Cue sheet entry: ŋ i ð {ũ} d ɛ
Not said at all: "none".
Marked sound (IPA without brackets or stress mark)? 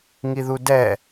u